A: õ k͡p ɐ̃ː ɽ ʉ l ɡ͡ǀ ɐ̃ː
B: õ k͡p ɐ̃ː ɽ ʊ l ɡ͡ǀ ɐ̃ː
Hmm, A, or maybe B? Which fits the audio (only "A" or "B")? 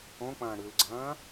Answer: A